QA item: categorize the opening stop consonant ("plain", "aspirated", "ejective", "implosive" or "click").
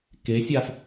plain